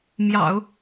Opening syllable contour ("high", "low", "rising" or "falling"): low